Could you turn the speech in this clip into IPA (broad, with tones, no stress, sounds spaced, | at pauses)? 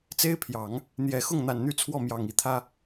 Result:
t͡s e˥ ɪ̯ pʰ j ɑ˨˩˦ ŋ | n̪ j ɛ˨˩ x ʊ˥˩ ŋ n̪ a˨˩ n n̪ y˥˧ t͡sʰ w ɔ˥˩ m j ɑ˨˩ ŋ i˧˥ t̪ʰ ä˥